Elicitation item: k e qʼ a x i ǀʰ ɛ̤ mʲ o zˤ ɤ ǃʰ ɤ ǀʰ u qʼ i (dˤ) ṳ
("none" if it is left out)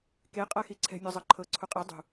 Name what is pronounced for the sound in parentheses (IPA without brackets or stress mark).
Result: dˤ